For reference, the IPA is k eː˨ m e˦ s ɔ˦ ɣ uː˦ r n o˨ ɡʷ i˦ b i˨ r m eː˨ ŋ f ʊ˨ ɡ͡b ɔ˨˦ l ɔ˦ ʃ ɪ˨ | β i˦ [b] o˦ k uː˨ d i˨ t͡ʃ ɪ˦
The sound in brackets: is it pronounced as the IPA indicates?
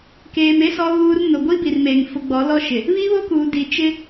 no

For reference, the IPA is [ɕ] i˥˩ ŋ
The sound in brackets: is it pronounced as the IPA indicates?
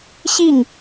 yes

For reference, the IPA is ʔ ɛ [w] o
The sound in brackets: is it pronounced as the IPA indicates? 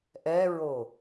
no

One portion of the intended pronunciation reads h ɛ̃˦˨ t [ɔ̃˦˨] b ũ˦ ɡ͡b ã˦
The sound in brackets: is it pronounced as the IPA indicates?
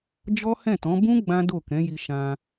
no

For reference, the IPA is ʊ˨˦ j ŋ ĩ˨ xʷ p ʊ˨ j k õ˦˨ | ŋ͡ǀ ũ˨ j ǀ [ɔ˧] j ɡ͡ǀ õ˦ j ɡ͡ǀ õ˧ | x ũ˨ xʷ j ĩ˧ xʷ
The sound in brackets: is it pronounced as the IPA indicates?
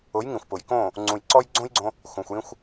yes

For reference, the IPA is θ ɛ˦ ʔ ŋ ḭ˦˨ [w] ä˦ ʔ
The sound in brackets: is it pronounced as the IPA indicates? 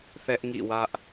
yes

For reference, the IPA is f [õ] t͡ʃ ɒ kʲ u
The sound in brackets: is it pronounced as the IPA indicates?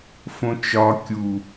yes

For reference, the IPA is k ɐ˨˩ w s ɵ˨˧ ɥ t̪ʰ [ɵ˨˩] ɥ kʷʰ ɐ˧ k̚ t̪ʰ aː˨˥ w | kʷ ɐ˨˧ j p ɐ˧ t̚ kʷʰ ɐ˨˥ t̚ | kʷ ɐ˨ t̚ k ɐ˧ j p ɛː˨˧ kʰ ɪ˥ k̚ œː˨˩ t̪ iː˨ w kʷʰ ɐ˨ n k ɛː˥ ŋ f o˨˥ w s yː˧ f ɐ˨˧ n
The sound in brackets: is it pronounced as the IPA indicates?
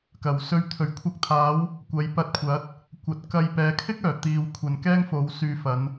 yes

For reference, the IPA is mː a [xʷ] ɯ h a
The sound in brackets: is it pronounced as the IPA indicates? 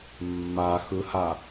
no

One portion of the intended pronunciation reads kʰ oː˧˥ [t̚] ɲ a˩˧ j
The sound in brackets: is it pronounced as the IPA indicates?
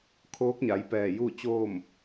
no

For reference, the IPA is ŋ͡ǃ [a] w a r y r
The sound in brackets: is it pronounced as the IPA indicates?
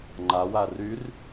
yes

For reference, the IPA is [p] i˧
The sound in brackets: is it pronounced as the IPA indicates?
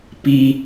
yes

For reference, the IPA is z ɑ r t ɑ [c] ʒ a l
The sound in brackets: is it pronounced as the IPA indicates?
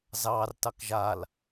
no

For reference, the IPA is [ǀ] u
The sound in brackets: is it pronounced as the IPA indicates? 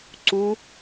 yes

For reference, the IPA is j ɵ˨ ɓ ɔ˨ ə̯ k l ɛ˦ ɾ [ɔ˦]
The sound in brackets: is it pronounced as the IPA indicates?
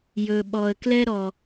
yes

